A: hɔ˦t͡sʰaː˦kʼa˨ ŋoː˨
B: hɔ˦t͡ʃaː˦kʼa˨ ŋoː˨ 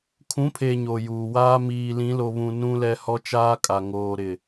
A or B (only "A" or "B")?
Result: B